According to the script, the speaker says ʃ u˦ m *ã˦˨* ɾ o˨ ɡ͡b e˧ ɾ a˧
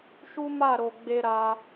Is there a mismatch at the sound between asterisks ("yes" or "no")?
yes